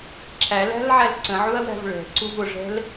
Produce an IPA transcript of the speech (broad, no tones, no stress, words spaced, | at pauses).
ǁʰælæ̤lʕæl ǀə̃ʕuɐ̯wæ̤v ɭɛ̤ǀuv ʊʐɛ̤l